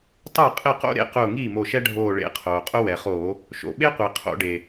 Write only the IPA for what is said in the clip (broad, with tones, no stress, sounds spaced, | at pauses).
tˤ ɛ˥˩ qʼ ɪ˥˩ q o̰˥ ɾ ḛ˧˩ q ʊː˧˩ ŋ iː˥˩ m o˧˩ ʃ ɛ˥ ɖʱ oː˧˩ ɭ ḛ˧˩˧ qʰ oː˩ qʼ ʊ˥ w ɛ˩ χ oː˧˩˧ | ʃ o̰˩ ɓ e˥ qʷ i˩ qʰ o̰˧˩˧ ɖ e˩